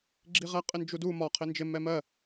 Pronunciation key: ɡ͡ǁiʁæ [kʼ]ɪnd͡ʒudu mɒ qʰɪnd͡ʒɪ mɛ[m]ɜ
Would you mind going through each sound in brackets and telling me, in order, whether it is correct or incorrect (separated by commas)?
incorrect, correct